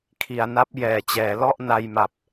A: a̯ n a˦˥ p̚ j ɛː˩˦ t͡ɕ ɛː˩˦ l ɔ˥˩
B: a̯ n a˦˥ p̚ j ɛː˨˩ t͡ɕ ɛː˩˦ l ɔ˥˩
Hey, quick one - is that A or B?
B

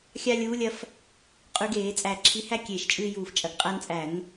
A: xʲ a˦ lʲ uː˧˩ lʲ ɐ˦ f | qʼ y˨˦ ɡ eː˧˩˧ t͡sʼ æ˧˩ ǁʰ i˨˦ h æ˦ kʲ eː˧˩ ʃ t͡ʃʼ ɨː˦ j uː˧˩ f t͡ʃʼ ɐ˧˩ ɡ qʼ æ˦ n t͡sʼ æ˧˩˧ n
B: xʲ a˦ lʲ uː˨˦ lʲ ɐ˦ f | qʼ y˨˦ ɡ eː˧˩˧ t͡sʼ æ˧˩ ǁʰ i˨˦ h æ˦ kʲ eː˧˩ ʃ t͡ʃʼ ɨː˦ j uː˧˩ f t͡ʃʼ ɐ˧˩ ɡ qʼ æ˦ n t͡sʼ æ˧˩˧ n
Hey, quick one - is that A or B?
B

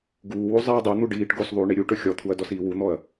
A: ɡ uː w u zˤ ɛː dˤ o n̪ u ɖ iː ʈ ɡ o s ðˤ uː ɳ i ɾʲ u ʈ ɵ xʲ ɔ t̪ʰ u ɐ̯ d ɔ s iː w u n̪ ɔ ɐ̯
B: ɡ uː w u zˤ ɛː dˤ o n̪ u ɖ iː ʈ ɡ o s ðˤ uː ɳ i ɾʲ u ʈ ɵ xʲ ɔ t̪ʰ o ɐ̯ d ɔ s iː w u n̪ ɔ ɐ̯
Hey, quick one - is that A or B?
A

